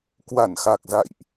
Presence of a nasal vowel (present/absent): absent